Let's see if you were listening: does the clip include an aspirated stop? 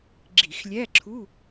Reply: yes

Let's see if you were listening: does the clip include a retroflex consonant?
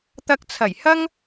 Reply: no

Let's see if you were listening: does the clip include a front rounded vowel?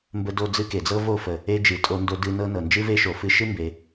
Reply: no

